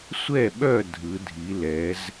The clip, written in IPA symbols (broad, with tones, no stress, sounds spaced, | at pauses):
sʷ ɛ˥˨ ɓ œ˥˨ dʱ ɯ˩˧ dʱ i˩˧ l ɛ˩˧ z